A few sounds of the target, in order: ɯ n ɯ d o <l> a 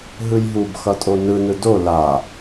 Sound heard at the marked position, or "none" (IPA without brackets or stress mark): l